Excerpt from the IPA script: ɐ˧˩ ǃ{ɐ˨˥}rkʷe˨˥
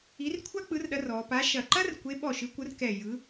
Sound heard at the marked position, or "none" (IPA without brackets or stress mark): ɐ˥